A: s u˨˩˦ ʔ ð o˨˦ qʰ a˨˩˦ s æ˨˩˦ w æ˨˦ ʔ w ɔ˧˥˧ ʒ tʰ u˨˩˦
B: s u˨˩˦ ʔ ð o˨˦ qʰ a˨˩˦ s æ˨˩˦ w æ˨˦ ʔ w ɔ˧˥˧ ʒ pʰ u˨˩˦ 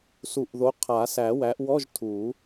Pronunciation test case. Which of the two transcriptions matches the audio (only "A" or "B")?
A